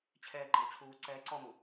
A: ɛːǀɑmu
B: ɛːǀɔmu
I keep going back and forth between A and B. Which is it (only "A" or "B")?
B